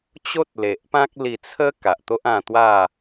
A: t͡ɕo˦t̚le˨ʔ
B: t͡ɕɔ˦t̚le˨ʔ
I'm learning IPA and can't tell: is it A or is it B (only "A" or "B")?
A